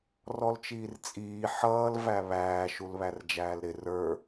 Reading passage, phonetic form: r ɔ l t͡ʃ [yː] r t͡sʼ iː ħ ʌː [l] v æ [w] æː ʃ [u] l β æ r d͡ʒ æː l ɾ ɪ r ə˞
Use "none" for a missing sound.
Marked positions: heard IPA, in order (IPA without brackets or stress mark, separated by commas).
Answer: iː, l, β, u